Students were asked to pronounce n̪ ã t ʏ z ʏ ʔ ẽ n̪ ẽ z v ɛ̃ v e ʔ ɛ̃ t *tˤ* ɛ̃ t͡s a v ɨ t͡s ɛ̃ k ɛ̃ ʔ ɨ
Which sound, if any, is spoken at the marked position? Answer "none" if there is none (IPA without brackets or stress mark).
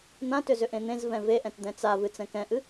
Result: d̪